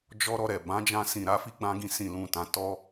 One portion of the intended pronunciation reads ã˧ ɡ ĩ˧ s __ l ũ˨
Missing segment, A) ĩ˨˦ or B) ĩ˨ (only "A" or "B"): B